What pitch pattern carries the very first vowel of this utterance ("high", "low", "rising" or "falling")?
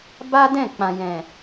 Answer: high